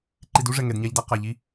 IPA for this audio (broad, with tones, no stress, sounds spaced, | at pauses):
ǃ i˨ d u˦ ʐ ɛ˨ ŋ ɛ˨ d ɲ a˦ ʎ d a˦ q a˨ ʎ i˦